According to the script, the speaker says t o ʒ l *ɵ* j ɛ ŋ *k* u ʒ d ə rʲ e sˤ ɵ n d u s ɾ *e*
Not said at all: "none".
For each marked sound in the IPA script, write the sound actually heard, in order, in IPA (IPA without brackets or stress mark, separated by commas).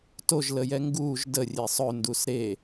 ə, ɡ, e